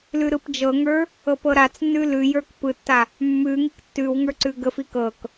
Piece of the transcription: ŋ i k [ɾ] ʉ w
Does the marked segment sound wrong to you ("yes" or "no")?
yes